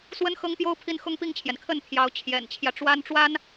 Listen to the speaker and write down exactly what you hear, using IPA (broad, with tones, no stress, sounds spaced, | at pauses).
s w ə˥ n x ɤ˥ ŋ p j o˥ ʊ̯ pʰ i˥˩ n x ʊ˥ ŋ p i˥˩ ŋ t͡ɕʰ j ɛ˩ n kʰ ə˥˩ n t̪ʰ j ɑ˧˥ ʊ̯ t͡ɕʰ j ɛ̰˨˩ n t͡ɕʰ j ä˦ ʈ͡ʂ w a˥ n ʈ͡ʂ w a˥ n